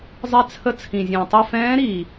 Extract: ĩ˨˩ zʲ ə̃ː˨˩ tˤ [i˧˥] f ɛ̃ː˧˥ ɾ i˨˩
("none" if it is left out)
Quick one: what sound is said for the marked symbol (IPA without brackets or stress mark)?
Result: i˦˨